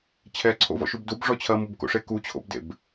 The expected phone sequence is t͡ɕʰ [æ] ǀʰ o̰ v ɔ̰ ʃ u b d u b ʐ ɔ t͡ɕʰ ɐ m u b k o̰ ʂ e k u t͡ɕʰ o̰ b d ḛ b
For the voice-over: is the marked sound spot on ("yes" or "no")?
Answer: no